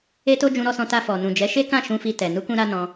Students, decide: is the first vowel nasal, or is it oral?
oral